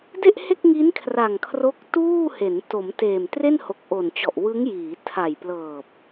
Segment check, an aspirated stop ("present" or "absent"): present